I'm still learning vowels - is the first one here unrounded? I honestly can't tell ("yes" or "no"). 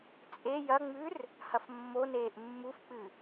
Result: yes